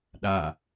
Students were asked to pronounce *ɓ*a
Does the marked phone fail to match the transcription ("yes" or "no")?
yes